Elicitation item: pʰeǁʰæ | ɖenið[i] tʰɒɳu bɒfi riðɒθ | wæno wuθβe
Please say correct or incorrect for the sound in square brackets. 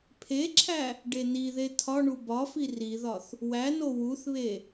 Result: incorrect